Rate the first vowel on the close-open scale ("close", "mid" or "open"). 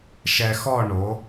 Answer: mid